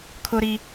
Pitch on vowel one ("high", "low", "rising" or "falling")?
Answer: high